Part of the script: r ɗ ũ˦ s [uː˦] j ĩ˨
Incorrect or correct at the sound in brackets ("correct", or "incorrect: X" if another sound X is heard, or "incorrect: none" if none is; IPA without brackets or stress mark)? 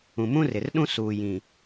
incorrect: uː˨